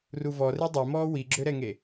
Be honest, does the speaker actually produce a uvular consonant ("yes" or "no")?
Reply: no